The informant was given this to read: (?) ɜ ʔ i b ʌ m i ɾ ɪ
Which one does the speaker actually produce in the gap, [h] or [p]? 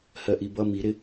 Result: h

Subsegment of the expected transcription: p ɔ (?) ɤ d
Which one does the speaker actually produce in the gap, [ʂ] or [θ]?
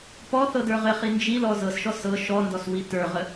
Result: θ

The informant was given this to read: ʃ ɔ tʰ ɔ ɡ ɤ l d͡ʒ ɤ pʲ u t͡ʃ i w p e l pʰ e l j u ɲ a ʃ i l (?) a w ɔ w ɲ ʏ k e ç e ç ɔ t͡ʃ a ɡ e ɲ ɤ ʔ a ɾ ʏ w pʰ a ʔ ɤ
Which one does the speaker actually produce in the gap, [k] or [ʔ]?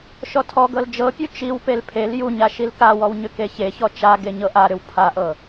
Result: k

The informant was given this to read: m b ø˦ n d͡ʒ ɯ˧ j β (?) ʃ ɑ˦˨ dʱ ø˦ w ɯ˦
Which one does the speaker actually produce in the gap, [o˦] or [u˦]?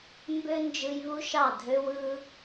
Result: u˦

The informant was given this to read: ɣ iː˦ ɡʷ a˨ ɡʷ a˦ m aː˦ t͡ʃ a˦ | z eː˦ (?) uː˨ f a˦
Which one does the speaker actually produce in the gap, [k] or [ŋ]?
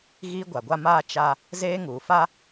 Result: ŋ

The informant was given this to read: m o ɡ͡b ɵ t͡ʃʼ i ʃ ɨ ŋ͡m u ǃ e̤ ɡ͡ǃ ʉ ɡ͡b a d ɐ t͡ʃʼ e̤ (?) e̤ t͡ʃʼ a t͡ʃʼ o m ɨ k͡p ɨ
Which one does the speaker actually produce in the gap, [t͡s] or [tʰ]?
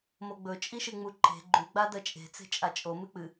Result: t͡s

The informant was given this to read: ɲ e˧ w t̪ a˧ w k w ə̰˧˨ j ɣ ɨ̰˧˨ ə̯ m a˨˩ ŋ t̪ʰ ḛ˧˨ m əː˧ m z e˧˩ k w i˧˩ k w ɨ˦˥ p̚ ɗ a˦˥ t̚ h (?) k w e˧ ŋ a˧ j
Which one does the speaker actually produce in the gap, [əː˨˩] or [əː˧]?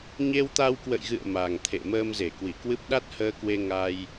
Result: əː˧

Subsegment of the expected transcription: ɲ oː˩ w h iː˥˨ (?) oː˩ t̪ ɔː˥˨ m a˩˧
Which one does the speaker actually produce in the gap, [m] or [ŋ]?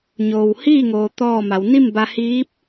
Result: ŋ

